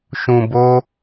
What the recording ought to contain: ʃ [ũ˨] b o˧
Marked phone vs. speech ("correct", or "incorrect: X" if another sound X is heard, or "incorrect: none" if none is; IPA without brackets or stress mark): correct